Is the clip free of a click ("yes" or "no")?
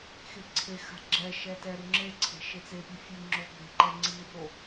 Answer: no